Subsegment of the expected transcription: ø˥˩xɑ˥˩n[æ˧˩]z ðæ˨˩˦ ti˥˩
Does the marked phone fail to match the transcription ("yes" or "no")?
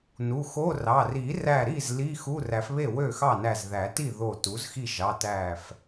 no